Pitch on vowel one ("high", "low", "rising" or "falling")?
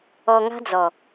low